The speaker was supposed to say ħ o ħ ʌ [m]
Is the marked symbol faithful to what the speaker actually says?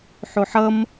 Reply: yes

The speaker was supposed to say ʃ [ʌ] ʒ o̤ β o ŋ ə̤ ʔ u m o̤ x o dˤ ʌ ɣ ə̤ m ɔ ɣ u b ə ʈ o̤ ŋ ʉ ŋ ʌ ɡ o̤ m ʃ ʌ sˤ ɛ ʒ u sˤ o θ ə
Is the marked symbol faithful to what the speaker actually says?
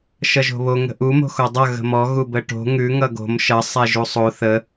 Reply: yes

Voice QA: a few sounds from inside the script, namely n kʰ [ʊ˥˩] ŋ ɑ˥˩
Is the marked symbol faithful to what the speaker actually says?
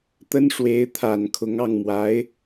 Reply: no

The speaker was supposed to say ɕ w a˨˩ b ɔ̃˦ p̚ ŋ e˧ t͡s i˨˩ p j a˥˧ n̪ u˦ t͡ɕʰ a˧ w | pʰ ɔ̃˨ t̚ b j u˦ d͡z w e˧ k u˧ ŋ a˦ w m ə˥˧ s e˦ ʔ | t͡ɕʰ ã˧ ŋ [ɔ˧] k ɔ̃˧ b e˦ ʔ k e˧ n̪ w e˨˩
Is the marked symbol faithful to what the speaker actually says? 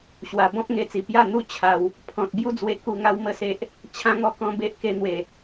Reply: yes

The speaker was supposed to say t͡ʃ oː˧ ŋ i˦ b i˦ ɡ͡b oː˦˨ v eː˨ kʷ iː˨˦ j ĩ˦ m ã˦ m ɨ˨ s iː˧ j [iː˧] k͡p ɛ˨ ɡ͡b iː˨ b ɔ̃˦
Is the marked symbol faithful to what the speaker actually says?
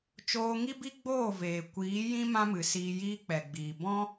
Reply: no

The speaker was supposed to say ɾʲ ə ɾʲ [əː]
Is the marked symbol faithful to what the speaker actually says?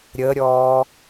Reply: no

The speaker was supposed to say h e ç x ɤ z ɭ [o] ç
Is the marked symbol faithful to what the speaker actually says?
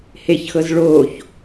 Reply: yes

